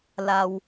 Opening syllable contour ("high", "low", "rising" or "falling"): low